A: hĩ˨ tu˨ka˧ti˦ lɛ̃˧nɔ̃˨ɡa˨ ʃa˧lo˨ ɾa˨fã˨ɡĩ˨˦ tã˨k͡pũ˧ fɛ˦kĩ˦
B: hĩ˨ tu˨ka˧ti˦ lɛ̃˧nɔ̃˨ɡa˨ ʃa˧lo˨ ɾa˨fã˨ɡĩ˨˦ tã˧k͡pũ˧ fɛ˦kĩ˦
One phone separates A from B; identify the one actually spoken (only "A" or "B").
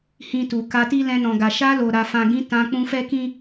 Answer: B